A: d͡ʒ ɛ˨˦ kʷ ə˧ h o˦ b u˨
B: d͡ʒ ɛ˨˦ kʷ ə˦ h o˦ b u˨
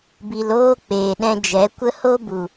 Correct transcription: B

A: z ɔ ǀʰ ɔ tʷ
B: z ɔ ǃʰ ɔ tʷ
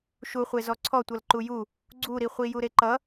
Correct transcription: A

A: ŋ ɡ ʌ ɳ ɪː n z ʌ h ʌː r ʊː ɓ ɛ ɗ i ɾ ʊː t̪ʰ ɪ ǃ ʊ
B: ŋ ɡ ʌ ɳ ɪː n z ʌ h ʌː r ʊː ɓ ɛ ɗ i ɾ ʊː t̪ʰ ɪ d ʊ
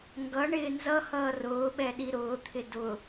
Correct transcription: B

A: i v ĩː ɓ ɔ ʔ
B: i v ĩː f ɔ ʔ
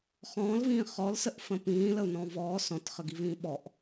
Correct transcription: A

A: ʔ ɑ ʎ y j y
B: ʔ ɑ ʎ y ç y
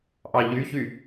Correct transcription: B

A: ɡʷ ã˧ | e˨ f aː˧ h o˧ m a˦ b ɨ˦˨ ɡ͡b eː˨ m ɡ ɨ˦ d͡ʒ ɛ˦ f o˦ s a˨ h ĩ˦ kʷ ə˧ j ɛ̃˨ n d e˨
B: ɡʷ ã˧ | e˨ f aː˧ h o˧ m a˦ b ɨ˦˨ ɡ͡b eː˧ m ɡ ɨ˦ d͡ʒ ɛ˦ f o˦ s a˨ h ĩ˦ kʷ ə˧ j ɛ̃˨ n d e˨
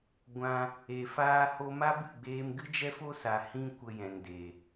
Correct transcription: B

